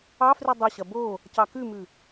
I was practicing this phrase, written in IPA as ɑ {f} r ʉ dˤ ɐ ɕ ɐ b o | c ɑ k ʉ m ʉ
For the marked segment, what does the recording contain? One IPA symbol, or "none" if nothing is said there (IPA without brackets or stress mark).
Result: f